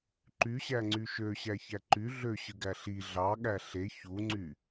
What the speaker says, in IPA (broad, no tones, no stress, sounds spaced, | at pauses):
ǃ y ɕ æ ŋ͡ǀ y ʃ ø ɕ æ ç æ ǃ y ɮ ø ɕ ɯ ɡ æ ɬ i ɮ ɑ ɠ æ ɬ e ç u ŋ͡ǀ y